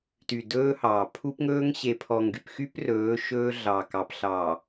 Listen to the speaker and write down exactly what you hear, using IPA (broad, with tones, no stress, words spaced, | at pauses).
ty˨dɵː˦hɑː˨ pʰu˦pŋɵː˦ŋ ɕe˨pʰɔ˨ŋɡy˨pxy˦p rɵː˨˦ʃɵː˦ɮɑ˨ kɑ˨pɬɑ˨